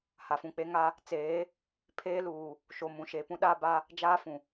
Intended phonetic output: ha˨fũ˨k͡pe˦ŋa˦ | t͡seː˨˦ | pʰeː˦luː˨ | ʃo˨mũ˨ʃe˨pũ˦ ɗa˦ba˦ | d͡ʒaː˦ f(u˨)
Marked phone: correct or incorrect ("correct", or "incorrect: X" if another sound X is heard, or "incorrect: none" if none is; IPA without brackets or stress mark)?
incorrect: ũ˨